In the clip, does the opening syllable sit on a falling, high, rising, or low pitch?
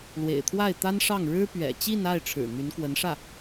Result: low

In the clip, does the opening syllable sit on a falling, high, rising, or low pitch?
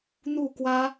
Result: falling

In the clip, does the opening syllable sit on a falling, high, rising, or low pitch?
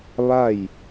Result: falling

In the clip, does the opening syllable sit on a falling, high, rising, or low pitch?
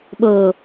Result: low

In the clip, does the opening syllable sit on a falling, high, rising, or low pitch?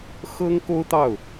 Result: high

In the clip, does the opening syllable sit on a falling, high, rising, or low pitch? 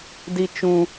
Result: high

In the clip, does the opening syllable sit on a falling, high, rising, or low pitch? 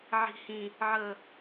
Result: low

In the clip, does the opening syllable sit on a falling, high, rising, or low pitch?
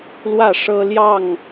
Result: falling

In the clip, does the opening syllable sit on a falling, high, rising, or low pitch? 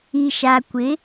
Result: low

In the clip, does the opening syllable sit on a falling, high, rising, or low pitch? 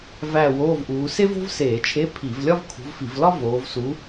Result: falling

